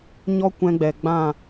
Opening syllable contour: high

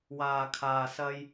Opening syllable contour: low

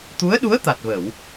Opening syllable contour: rising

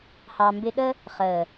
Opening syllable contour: low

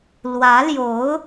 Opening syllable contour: rising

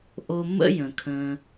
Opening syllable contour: low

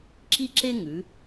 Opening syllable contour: high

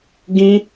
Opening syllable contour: high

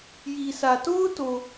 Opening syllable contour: low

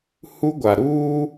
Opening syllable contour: high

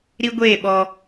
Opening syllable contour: high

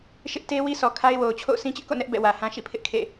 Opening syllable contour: high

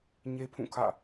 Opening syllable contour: high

